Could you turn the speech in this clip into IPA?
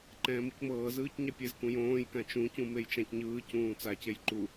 ǃ ɛ̃ː m u c m ɤː z ɯː c ɲ a pʲ e z k ũ j õː j k ã t͡ʃ ũ c ũ m e j t͡ʃ ã c ɲ ɯː c ũː t͡s a c e j ǃ u

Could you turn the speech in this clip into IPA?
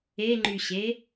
e ŋ͡ǃ y ɕ e

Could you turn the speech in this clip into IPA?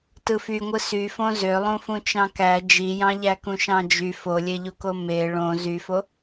t ɯ f y ŋʷ ɯ s y f õ z ø lˠ ũ f ũ t͡ʃ ɑ̃ k æ d͡ʒ i j ɑ̃ ʎ æ k ũ ʃ ɑ̃ d͡ʒ y f o lʲ e ʎ u k o m e ɭ õ z y f o

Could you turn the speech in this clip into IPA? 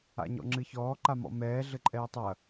a̰ ɲ ɔ̰ ŋ͡ǁ ɨ ç ɔː ǃ a m ɔ̰ m ɛː ɮ ɘ ǃʼ ɛː tˤ ɐ

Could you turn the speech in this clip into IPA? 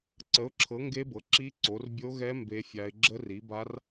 ǀ ə˨˦ ʊ̯ ǁʰ ɤ˨˦ ŋ ɡ e˦˥ b ɤ˨˦ ǁ i˦˥ ǀ o˨˦ r bʲ o˦˥ ɣ ɛ˦˥ m b e˦˥ fʲ a˦˥ ɪ̯ ɡ͡ǁ ə˦˥ r i˨˦ b a˦˥ r

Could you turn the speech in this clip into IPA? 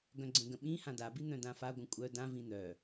ɡ œ̃ ɡ͡ǀ ə̃ ɡ ə̃ ɓ ĩ h ã d a b i n̪ œ̃ d ã f a ɡʷ ə̃ kʷʼ œ d ã v ĩ n̪ œ

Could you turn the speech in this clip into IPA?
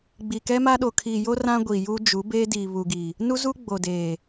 ɡ͡b i˨ k ɛ˦ m a˦ ɗ o˨ kʰ iː˨ j o˦ r ã˦ ɡʷ i˨ j u˦ d͡ʒ u˨˦ b eː˦ d iː˨ β u˨ ɡ i˨ | n u˦ z u˦ ɡ͡b o˨ d eː˨

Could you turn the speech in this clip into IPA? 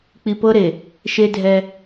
k͡p i˨ p ɤ˦ ɾ e˨ | ʃ e˦ dʱ ɛ˦

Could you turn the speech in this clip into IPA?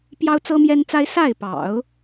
p j ɑ˥ ʊ̯ t͡s ɤ˥ m j ɛ˥ n t͡s a˥ ɪ̯ s a˥˩ ɪ̯ p ɑ̰˨˩˦ ʊ̯

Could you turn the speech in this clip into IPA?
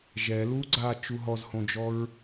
ʒ ɛ l u ɡ͡ǀ a t͡ʃ u ɦ ɔ z h õ d͡ʒ ɔ ɹ

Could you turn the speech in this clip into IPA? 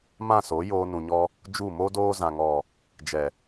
m ã˦˨ s o˨˦ j oː˧ n ũ˨ ɲ ɔ˧ | d͡ʒ u˦˨ m o˦ d oː˧ z ã˨ ŋ ɔ˨ | d͡ʒ ɛ˨

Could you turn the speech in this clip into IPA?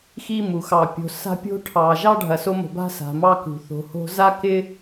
x i˦ m u˩ x ɑ˨ pʲ o̤˨ s a̤˦ pʲ o̤˦ ʈʰ ɑ˨ ʒ ɑ˥ ɖʱ ɐ˨ s o˦ m o̤˨ b a̤˦ s a̤˩ m ɑ˦ k ṳ˩ θ o̤˨ h o̤˦ z a˥ k ɪ˦

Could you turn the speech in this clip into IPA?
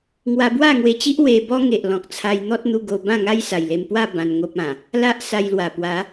ŋ w a˧ b w a˥˧ ŋ w e˧ t͡ɕ i˦ ʔ w e˧ b ɔ˦ ŋ e˨ ʔ l ɔ̃˨ k̚ t͡sʰ a˧ j n̪ ɔ˦ t̚ n̪ u˧ ɡ o˧ b ã˥˧ ŋ a˦ j s a˨˩ j l e˧ m p w a˥˧ b ã˧ n ŋ o˦ p̚ ã˨˩ | l a˦ ʔ s a˧ j l w a˨˩ p w a˨˦

